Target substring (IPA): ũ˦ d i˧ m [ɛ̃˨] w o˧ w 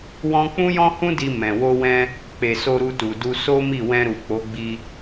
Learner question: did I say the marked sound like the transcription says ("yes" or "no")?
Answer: yes